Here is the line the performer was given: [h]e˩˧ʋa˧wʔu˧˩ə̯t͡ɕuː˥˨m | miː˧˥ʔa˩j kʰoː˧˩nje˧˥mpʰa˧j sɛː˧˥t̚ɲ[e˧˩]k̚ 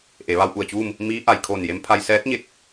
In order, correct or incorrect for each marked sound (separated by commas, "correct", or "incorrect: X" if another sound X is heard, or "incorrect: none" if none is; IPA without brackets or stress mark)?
incorrect: ʔ, correct